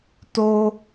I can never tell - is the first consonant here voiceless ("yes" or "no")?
yes